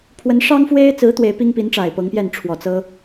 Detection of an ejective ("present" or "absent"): absent